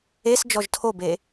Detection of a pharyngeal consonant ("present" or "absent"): absent